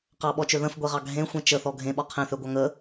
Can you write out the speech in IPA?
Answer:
q ɑ ɓ ɔ t͡ʃ ø ð ə̃ f ɡʷ e ʁ ɑ ɡʱ ẽ xʷ ẽ t͡ʃ ə θ ɔ ɡʱ ẽ ɓ ɔ qʰ ẽ θ ø ɡʷ ɑ ŋ ə

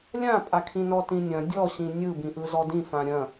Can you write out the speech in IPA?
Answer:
lʲ ã pʼ a kʰ ĩ n ɔ t ĩ nʲ ɐ̃ dʲ ɔ ɕ ĩ nʲ ɯ b ĩ ʔ ɯ z ɔ d ĩ f ã ɾʲ ɐ̃

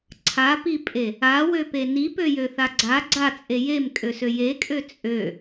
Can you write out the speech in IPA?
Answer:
ǀʰ a p i pʼ e | a w ø p e n i p ø j ø θ a ɡ͡ǀ a ɡ͡ǀ a t͡sʼ e j e m kʼ ø s ø j e kʼ ø t͡sʼ ø

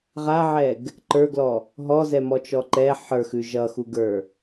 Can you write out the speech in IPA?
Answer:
ʁ a ʕ ɛ ɡ | ǃ ə˞ ɡ l ɔ | ɦ ɔ z ɛ m ɔ t͡ʃ ɔ ǃ ɛ ħ ə˞ x ʉ ʒ ʌ x u ɡ ə˞

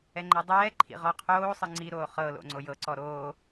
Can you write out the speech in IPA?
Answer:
ɛ ŋ͡ǃ ɛ dˤ ɛː ǃʰ ḭ ʁ ɔ qʰ oː sˤ ɯ ŋ͡ǀ i ɾ oː χ ɤ l o̰ ŋ͡ǀ o j ɤ ǀ ɔ ɾ oː

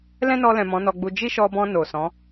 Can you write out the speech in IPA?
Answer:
l ɛ̃˦ n ɔ˧ l ɛ̃˨ m ɔ̃˨˦ n ɔ˧ ɡ͡b u˧ d͡ʒ i˦ ʃ ɔ˧ b ɔ̃˧ n o˨ s ɔ̃˨˦

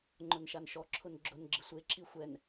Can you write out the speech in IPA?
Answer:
ŋ͡ǃ ʊ n ʃ a n ʃ ɔ ǁʰ ʊ n ɡ͡ǁ ʊ n ɡ͡ǁ ɪ sʷ e ǁ i xʷ ɛ n

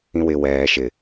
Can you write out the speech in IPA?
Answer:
ĩ w ɪ w ɛː ʃ ɪ

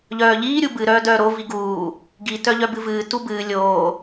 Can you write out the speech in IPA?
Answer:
ʎ œː ʎ iː ɾʲ u b ɨ ɾ œː d œː ɾ o v i ɡ uː | ɡ i t œ ʎ œ b ɨ v ɨː t u b ɨː lʲ oː

